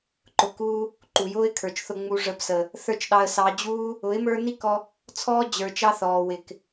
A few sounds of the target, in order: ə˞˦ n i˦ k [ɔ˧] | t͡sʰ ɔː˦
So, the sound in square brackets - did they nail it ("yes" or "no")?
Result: yes